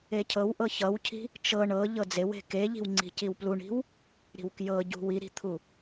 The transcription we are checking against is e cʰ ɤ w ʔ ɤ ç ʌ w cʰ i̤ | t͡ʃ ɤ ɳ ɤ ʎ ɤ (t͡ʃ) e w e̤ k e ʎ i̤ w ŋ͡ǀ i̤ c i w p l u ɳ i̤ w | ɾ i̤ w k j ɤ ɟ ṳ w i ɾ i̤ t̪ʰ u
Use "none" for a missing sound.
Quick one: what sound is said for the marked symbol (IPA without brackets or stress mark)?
d͡z